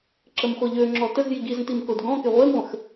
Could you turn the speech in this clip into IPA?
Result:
ǁ ə m χʷ ə ʎ ø ŋ͡ǁ ɔ t ə z j i ɡ i z ə̃ t i m k o d ɡ ɔ̃ k e ʁʷ e m ʁʷ ə̃ x

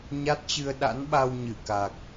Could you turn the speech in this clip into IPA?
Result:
ɲ a˦˥ t̚ t͡ɕ ɨ˧ ə̯ ɗ a̰˧˥ n ɓ a˧ w ɲ ɨ˧˩ k a˨˩ k̚

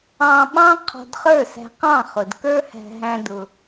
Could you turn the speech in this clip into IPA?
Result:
ɑ̃˧ ɓ ɑ̃˥ qʰ ɔ̤˧ d χ ə˞˥˩ s æ̤˧ q ɑ̃˥˩ χ ʊ˩ d k ə˞˥ h æ̤˧ ɦ æ̃˧ d ʊ˩

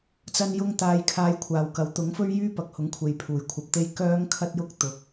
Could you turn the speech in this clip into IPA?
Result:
t͡s ɐ˧ n j ʊ˧ ŋ t̪ aː˨˧ j kʰ aː˧ j kʷʰ aː˨ w k ɐ˨˥ w t̪ ʊ˨˥ ŋ f ɵ˥ ɥ j yː˥ p ɐ˨˥ k̚ h ʊ˨˥ ŋ kʷʰ e˨ j pʰ uː˨ j kʷʰ ɐ˧ p̚ t̪ e˥ j k œː˥ ŋ kʰ ɐ˥ t̚ j ʊ˥ k̚ t̪ ʊ˧ k̚

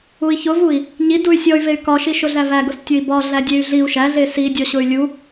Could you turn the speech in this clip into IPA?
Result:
u i̯ ç ʊ v u i̯ | ɲ i d u y̯ sʲ ɔ y̯ v e y̯ k ɒ ʃ i ʃ ʊ ɮ æ v æ ɡ ʊ s tʲ ʊ i̯ b ɒ ɮ æ dʲ e y̯ ɮ i u̯ ʃ æ ɮ e s i dʲ ɔ ɕ ʊ y̯ lʲ u

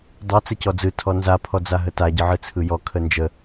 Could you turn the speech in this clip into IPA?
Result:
dˤ ɯ t͡s ə c ɔ d͡z ɯ tʰ ɔ n z a pʰ ɔ d͡z a ɦ ə t a ɟ ɯ ʕ ɯ t͡sʰ ɯ j ɔ kʰ ə n d͡ʒ ə

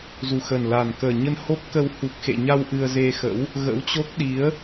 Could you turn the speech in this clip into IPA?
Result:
z u˨˩ x ə˨˩ n l a˨˩ n k əː˨˩ ɲ ə˧ n h o˦˥ p̚ k əː˧ w h u˨˩ k̚ x ḛ˧˨ ɲ a˧ w ʔ ɨ˧ ə̯ z e˧ x ə̰˧˥ w | ɣ ə̰˧˥ w t͡ɕ o˦˥ k̚ ɗ i˨˦ ə̯

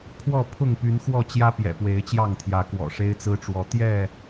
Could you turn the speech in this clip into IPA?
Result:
pʰ w ɔ˥˨ pʰ ʊ˥˨ ŋ p y˨˦ n x w ɔ˥˨ t͡ɕ j ä˦ p j ɛ̰˨˩ p w e˨˦ ɪ̯ t͡ɕ j ɑ˥˨ ŋ t̪ʰ j ä˨˦ k w ɔ̰˨˩ ʂ e˦ ɪ̯ t͡s ɹ̩˦ ʈ͡ʂ w ɔ˨˦ t̪ j ɛ˥˨

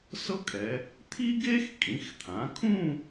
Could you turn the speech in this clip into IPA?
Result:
s ɤ˥ kʼ ɛ˩˧ | t̪ʰ i˥ ɡ e˥ x kʼ ĩ˩˧ x t̪ʰ ã˩˧ kʰ ũ˥˧

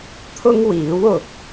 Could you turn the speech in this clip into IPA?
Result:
t̪ʰ ʊ˥ ŋ w iː˨˥ w ʊ˨ k̚

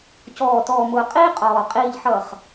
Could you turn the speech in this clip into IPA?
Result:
c ɔː˨ t ɔː˨ m ʊː˨ qʼ iː˦ qʼ ɔː˨ qʼ iː˨ ʎ ħ ʌ˨ χ

